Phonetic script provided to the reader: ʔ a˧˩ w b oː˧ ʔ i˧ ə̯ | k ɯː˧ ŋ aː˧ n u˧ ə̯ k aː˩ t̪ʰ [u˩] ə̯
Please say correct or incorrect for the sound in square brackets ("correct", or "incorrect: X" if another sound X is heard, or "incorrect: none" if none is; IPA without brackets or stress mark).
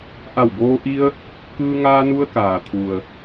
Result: correct